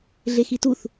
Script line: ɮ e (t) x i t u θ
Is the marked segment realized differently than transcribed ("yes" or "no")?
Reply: yes